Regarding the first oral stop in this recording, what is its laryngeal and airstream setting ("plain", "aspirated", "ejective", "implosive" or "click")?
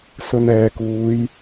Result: plain